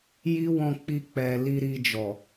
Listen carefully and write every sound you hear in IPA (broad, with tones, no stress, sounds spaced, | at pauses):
j i˦ w ɔ̃˧ k͡p i˧ k͡p ɛ˨ l i˧ ɾ i˧ d͡ʒ ɔ˨